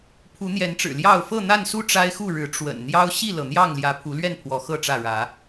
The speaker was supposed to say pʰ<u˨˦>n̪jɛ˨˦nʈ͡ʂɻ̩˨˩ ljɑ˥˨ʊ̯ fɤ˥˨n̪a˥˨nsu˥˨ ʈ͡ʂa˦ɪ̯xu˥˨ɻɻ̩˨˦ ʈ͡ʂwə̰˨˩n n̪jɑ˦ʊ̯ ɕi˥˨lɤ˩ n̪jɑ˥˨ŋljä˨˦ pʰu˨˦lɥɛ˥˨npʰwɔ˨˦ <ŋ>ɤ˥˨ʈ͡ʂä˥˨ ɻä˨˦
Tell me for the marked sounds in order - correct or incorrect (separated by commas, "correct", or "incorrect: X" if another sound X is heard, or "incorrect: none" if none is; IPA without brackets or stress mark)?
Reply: correct, incorrect: x